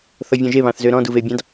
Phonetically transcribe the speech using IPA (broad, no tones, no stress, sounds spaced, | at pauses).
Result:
θ ɔ vʲ ɔ̃ ʒ e β ɑ̃ θ z ø ɾ ɔ̃ d u v e bʲ ɑ̃ d